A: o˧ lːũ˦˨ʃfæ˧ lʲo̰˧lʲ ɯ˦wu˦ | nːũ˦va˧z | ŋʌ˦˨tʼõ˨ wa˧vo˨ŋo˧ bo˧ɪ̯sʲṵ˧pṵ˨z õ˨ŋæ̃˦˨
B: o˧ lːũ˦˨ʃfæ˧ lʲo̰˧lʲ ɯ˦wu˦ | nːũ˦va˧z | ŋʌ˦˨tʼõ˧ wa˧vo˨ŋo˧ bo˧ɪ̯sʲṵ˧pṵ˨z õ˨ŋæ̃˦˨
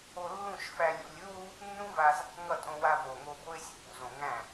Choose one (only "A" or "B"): B